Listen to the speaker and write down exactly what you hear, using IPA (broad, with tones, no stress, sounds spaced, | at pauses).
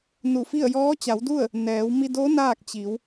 n u˧˩ f i˥˨ ə̯ j ɔː˧˥ t͡ɕ a˩˧ w d u˥˨ ə̯ | n ɛː˩˧ w m i˧ d o˧˥ n aː˥˨ k̚ t͡ɕ i˩˧ w